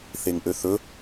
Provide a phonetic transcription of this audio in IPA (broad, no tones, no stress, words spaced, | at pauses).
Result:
θeŋʔøθɵ